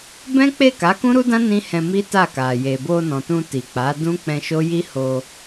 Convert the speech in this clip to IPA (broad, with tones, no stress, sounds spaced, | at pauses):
b ɛ̃˦ k͡p e˦˨ k a˨˦ k ũ˦ ɾ u˦ d ã˦ n ĩ˦ h ɛ̃˧ m i˦ t a˦˨ k a˨ j e˨ b o˧ n ɔ̃˨ t ũ˧ t i˨ k͡p a˨˦ d ũ˦ k͡p ɛ̃˧ ʃ o˦ j i˦ h o˧